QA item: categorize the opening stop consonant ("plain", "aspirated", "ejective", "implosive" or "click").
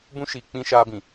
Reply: plain